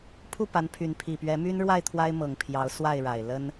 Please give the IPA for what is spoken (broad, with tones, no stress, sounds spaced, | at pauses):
pʰ u˥˨ p a˨˦ n pʰ y˨˦ n pʰ i˨˩ p ɥ ɛ˨˦ m y˦ n ɻ w a˥˨ ɪ̯ t̪ʰ w a˦ ɪ̯ m ɤ˨˩ ŋ pʰ j ɑ˨˦ ʊ̯ s w a˥˨ ɪ̯ ɻ a˨˩ ɪ̯ l ə˦ n